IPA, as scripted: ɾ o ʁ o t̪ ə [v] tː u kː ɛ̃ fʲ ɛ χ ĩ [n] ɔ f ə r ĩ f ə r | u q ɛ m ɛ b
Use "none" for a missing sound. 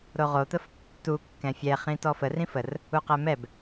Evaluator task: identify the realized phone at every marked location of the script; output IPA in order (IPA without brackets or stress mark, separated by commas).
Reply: f, t